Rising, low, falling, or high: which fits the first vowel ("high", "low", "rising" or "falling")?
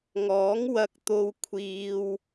rising